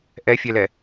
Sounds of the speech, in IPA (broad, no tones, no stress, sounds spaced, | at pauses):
ʔ ɛ fʲ ɛ l ɛ